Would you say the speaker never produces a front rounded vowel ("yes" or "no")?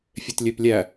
no